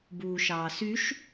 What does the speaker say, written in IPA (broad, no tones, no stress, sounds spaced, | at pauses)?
b uː ʃ ɑː s y ʃ